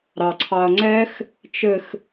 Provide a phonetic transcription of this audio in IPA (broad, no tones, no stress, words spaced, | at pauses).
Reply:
ɾɑǀʰɑɐ̯ŋ͡ǀɛx | t͡ʃɘx